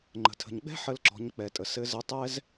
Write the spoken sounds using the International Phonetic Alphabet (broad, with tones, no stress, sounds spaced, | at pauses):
ŋ͡ǃ ə̤˩ tʰ ə̤˩ ɲ ɡ͡b ɛ̤˥ ħ ə˧ l ǁ ɔ̤˩˧ ɲ k͡p ɛ˩ tʼ ə˩ s ɘ˧˥ z ə˧˥ tˤ ɛ˥ z